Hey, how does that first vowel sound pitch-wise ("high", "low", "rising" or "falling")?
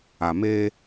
low